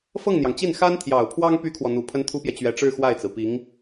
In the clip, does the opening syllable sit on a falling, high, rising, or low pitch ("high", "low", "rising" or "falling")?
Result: falling